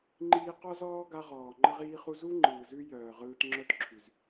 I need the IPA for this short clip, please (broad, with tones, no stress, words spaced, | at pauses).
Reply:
ŋ͡ǃiː˧qɔ˦zɔː˦ ɡa˦ʁɔː˨ ŋ͡ǃə˦ʁiː˦χu˦ zu˦ŋ͡ǃɯː˨zʉ˧ jœː˨ʁɯː˧t ŋ͡ǁœ˦tǁʰʉ˨z